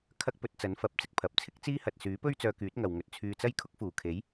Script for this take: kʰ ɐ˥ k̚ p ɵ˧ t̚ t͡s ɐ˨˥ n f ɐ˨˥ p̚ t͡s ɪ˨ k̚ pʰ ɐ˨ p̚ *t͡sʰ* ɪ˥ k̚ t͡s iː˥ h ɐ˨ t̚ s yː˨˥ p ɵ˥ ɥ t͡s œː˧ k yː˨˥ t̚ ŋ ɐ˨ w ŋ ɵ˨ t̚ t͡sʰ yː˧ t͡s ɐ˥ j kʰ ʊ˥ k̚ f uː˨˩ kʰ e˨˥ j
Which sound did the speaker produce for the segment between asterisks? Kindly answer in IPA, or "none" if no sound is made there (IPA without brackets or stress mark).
t͡sʰ